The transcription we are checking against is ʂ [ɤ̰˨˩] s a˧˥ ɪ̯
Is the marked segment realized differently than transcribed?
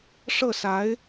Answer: yes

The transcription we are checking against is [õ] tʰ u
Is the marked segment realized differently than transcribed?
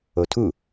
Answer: yes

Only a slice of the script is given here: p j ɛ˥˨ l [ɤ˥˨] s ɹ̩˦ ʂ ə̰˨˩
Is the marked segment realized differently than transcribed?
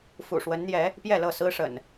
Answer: no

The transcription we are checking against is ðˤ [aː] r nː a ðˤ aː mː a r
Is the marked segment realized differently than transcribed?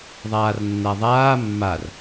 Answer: no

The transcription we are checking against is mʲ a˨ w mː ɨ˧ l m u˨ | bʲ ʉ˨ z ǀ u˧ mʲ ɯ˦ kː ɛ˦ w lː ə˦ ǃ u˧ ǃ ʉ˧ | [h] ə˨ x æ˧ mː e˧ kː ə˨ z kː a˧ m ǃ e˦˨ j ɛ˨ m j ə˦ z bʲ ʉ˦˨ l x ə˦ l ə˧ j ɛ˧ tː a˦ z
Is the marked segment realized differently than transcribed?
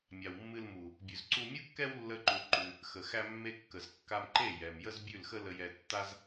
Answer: yes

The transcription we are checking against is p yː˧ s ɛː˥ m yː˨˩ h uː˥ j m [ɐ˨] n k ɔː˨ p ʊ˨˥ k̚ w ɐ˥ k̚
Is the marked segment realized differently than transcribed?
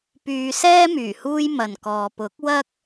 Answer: no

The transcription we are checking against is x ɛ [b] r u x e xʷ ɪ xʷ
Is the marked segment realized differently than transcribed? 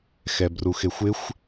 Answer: no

